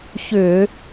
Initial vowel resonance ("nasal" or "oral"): oral